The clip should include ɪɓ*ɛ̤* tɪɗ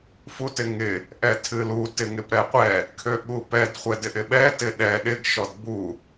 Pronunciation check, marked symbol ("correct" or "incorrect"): incorrect